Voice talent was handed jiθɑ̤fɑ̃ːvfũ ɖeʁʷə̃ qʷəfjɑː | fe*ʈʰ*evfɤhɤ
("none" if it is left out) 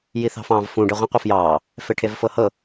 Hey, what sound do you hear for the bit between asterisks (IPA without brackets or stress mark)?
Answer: ʈʰ